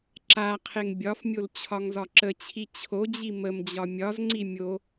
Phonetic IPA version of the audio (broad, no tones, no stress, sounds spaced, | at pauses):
ǁ a qʰ e ŋ bʲ ɒ f mʲ o l t͡ɕʰ ɒ ŋ z ɒ ǁ ə t͡ɕʰ i t͡ɕʰ o d͡ʑ i m ə m d͡ʑ ɒ mʲ ɒ z ŋ͡ǀ i mʲ o